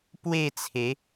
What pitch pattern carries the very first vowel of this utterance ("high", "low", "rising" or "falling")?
falling